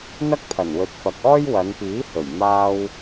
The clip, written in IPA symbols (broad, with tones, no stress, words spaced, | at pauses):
n̪ɐ˥k̚pʰɐ˨˩nwɵ˨˥t̚ fɐ˨k̚ɔː˥jwɐ˨˧npiː˨˥ hɵ˨˩ɥ maː˧w